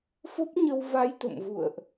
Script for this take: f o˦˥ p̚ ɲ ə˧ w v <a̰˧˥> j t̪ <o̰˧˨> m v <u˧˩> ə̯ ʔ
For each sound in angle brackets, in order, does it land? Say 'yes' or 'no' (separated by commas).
no, yes, no